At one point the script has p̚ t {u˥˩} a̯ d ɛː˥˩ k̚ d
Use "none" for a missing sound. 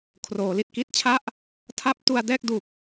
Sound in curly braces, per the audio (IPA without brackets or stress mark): u˧